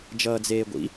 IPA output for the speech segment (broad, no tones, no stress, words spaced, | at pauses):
d͡ʒʌːd͡zeːɡʷḭ